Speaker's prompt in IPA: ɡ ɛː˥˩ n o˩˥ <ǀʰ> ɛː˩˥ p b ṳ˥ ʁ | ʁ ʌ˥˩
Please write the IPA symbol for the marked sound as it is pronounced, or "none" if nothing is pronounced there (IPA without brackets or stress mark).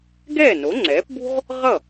ŋ͡ǀ